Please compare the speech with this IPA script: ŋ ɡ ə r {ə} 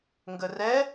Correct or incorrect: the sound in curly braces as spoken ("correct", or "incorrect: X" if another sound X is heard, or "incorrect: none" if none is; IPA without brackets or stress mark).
incorrect: ɛ